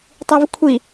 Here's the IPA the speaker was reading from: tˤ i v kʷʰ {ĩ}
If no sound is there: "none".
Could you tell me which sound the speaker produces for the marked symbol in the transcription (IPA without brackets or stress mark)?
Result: i